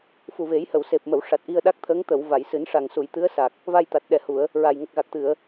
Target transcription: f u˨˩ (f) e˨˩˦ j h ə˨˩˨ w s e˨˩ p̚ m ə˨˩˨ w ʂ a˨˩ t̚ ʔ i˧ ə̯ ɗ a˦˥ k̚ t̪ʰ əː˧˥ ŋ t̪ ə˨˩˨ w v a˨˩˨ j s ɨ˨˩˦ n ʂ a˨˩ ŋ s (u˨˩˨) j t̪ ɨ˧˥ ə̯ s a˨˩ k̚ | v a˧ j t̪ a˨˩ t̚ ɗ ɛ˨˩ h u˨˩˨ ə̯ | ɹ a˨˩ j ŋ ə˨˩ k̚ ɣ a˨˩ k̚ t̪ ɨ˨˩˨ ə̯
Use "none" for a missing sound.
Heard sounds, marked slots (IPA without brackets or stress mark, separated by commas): v, u˨˩˨